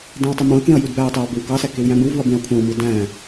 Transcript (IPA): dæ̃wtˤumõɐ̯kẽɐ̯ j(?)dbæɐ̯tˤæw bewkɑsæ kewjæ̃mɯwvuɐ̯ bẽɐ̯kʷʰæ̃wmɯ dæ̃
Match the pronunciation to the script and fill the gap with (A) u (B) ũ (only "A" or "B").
A